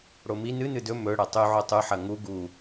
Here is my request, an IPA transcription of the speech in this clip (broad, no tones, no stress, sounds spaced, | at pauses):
ɽ o m i n ɨ n ɨ d ɵ m ɵ ɽ ɐ tˤ ʉ ʕ o tˤ ʉ ħ ɐ ŋ u ɡ u